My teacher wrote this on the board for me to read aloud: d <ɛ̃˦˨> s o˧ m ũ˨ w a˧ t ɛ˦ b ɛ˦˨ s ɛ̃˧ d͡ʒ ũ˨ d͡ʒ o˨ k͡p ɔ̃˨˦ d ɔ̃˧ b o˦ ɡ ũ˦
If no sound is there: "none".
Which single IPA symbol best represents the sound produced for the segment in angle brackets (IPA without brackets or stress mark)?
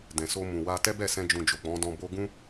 ɛ̃˨